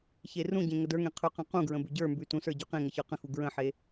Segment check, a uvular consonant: present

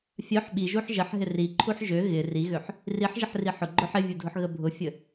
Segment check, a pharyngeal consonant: present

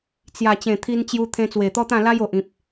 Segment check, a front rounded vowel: absent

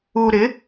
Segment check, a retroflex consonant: absent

